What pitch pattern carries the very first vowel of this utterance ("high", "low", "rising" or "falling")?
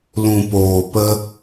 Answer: low